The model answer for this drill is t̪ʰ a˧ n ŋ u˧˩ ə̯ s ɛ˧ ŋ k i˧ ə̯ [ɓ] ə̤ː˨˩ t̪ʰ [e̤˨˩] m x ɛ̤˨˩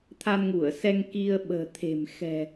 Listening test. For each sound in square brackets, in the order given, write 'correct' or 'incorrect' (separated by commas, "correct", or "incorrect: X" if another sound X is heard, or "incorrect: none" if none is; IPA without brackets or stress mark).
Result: correct, correct